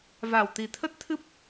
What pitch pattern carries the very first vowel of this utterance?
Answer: low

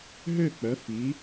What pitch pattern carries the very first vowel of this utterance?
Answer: falling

